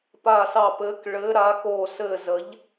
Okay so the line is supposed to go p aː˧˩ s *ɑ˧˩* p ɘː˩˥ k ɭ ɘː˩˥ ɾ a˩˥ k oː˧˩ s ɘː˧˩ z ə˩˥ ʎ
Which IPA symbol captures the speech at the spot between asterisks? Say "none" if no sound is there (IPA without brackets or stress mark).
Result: ɑ˧˩